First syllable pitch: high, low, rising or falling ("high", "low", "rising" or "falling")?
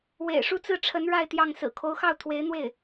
low